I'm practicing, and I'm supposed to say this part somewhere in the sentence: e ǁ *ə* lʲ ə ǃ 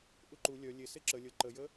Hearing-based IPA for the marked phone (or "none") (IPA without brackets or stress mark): ə